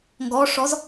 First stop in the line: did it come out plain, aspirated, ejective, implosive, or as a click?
plain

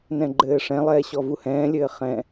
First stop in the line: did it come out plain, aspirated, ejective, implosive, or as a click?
click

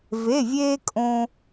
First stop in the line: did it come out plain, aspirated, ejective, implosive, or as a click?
ejective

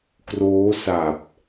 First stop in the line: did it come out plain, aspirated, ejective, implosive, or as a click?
plain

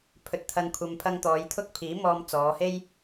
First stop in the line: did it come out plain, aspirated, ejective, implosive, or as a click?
aspirated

